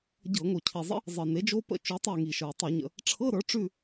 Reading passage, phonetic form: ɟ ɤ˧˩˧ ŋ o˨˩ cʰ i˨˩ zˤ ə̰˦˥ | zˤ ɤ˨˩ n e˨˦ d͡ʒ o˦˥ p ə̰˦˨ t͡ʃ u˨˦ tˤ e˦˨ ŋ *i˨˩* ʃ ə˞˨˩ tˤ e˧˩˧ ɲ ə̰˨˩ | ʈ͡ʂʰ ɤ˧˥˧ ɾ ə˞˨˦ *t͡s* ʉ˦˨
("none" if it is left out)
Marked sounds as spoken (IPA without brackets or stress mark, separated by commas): i˨˩, ʈ͡ʂ